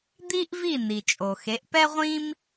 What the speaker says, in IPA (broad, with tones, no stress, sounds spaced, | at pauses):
d̪ i˥ ʔ v i˥˩ n i˩ t͡ʃʼ o˩ x e˩˥ ʔ p ɛ˥ ʁʷ ĩ˥ m